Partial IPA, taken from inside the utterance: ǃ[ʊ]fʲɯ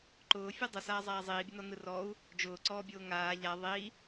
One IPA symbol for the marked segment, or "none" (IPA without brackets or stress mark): ʊː